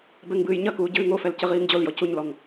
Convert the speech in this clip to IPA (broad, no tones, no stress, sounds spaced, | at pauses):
b ɛ ŋ b ɨː j ɲ ɐ k uː ɟ ɨː ŋ o f ɛ l c ɘ ʁ iː ŋ d͡ʑ o l j ɔ c u ɲ l ɔ ŋ